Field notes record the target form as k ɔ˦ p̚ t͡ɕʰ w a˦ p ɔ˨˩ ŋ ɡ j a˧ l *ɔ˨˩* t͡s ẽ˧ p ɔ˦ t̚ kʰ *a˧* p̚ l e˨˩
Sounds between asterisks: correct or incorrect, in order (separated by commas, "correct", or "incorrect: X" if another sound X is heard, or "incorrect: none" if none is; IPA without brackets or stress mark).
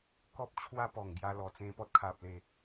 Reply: correct, incorrect: a˨